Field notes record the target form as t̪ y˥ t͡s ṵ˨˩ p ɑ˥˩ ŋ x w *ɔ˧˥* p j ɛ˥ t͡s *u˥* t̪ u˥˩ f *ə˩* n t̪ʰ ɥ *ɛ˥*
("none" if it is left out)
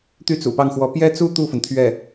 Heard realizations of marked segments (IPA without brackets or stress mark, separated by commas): ɔ˧˥, u˥, ə˩, ɛ˥˩